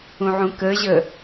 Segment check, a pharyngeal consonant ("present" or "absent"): present